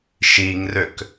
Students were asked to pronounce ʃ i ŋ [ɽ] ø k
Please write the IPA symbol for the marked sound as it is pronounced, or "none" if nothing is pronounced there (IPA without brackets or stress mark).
r